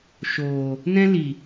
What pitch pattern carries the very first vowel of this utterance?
low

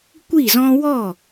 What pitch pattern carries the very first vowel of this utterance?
falling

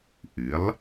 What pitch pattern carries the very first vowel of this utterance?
rising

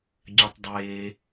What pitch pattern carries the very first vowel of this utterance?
low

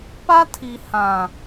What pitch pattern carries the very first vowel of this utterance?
high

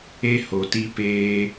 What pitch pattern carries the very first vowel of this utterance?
high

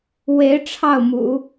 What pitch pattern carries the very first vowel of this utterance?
rising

